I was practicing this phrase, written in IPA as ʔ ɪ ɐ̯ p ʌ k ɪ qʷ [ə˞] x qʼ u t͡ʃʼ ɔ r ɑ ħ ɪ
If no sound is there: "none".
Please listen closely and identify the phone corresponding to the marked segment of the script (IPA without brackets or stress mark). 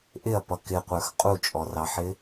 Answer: ə˞